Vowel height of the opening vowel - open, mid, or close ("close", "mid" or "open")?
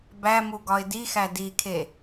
open